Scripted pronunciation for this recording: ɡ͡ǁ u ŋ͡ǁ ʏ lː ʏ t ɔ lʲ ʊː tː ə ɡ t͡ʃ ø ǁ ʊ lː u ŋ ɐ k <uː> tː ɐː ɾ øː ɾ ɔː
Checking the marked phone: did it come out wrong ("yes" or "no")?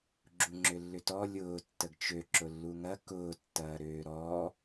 yes